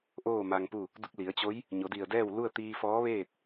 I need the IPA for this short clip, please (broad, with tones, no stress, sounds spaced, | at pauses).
ʔ oː˥˨ m a˧ ŋ p u˥˨ | d u˧ k̚ l i˩˧ ə̯ t͡ɕ o˧˥ j | ɲ o˩˧ d i˧˩ ə̯ d ɛː˥˨ w l u˥˨ ə̯ t̪ iː˧ f ɔː˧˥ ʋ eː˥˨ t̚